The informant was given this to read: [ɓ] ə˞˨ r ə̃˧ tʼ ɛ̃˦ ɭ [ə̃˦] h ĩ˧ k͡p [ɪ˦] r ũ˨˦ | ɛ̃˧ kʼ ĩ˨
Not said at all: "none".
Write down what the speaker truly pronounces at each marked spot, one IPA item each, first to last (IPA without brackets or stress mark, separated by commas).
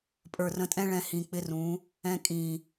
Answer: pʼ, ɛ̃˦, ɪ˦